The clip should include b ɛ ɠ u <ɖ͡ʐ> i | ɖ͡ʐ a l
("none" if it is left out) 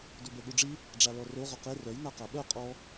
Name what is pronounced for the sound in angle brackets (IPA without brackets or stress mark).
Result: ɖ͡ʐ